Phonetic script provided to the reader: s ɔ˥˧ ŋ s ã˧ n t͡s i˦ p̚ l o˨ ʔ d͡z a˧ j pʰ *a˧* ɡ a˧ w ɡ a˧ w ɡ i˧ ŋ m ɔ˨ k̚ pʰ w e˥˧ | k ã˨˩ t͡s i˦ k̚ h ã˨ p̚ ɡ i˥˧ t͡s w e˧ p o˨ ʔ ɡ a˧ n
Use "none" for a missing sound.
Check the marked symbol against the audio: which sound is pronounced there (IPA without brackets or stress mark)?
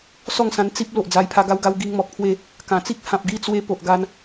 a˧